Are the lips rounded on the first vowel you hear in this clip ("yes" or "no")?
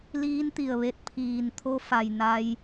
no